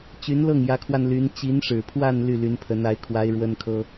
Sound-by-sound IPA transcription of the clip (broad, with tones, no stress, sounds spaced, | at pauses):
t͡ɕ y˧˥ n l ɤ˥˩ ŋ j ä˧˥ kʰ w a˧ n l y˧˥ n t͡ɕ i˧˥ n ʂ ɻ̩˨˩ pʰ w a˥˧ n l y˥˩ l y˧˥ n pʰ ə˧˥ n a˧˥ ɪ̯ kʰ w a˧˥ ɪ̯ ɻ w ə˥ n kʰ ɤ˥